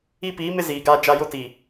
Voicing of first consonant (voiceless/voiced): voiceless